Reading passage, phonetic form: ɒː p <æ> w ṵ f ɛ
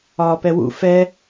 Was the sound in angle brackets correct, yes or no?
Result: no